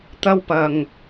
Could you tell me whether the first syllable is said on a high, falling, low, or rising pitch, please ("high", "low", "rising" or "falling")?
high